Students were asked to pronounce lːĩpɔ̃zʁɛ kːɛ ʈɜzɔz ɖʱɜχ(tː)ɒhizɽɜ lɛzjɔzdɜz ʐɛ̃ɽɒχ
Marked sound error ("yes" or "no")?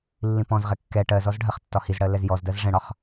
no